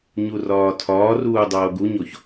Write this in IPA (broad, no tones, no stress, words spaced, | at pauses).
ɲurɒːtʰɒːruː dˤoːɡuɲoç